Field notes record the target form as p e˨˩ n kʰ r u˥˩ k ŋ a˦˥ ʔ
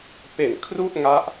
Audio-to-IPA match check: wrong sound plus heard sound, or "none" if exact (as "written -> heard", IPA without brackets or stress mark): k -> ʔ